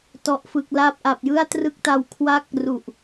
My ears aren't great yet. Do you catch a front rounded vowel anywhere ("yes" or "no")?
no